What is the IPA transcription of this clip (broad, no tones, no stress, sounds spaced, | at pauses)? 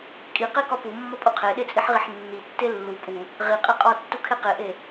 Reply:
kʼ i q e k ɒ p u mː ɒ pʼ u qʰ e ɗ e t͡sʼ i ħ ʁ i ħ nː i tː e lː u pʼ u | ʁ i qʼ e qʼ ɒ tː u kʰ e q e ʔ e